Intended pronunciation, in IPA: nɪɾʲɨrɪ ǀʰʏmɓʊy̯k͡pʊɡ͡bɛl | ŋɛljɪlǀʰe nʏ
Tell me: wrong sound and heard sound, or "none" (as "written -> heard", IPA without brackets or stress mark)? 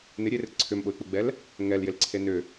ɨ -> e